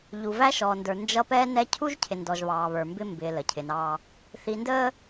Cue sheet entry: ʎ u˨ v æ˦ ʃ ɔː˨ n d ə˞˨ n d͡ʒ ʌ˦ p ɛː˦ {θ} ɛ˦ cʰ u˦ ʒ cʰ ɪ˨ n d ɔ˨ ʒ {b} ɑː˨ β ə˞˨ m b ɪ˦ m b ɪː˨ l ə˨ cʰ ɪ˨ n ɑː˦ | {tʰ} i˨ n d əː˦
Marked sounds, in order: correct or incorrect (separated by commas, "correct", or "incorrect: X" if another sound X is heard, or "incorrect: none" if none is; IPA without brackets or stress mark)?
incorrect: n, incorrect: β, incorrect: θ